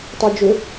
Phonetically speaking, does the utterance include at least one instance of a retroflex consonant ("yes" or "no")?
no